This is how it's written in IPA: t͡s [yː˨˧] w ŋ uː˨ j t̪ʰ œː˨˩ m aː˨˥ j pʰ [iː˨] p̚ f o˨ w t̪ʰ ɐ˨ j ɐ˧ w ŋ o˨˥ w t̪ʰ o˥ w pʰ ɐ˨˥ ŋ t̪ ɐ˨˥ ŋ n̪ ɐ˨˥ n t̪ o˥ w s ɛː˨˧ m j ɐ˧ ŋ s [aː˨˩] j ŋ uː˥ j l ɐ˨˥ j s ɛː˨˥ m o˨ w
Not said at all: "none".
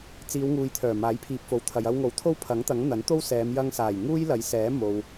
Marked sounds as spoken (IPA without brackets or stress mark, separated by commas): iː˨˧, iː˨, aː˨˩